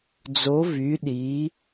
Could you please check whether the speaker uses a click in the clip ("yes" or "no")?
no